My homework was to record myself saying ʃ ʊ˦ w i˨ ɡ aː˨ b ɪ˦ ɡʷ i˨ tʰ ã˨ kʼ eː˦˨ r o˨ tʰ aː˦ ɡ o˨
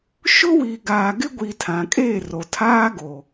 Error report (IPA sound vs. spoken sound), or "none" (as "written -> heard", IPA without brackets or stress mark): b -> ɡ